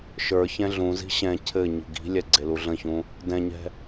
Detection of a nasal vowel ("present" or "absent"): present